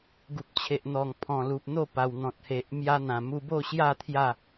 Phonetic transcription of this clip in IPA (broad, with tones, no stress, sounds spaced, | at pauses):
ɡ u˨ p̚ t͡ɕʰ e˨ ʔ n̪ ɔ˨˩ ŋ pʰ ɔ̃˨˩ l u˨ p̚ n̪ o˥˧ p a˨˩ w n̪ ɔ̃˨ t̚ h e˨ ʔ m j a˧ n̪ ã˨˩ m u˧ b o˥˧ ɕ j a˥˧ t̪ʰ j a˥˧